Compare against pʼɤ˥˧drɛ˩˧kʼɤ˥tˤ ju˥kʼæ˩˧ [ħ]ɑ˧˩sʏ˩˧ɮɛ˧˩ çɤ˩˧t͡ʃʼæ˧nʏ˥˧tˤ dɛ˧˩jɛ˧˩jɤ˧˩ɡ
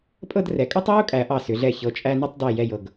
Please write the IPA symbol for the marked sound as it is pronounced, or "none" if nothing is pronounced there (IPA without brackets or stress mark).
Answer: ʔ